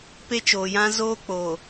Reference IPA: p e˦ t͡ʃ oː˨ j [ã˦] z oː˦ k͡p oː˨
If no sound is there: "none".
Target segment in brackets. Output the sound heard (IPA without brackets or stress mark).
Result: ã˦